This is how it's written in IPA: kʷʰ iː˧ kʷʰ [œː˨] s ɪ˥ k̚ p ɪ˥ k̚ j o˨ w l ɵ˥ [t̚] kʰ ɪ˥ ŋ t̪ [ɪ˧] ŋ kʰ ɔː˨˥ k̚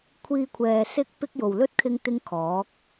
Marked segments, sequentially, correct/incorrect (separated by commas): incorrect, correct, incorrect